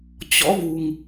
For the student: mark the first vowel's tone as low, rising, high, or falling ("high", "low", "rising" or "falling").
rising